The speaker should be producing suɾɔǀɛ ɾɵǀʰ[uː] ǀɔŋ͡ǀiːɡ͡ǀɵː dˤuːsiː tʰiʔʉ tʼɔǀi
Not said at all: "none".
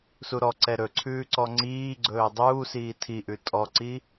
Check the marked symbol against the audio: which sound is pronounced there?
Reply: ʉː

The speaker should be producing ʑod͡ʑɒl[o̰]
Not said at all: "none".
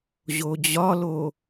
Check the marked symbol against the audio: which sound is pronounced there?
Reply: o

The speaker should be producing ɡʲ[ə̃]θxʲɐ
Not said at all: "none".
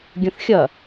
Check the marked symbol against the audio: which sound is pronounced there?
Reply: ə̃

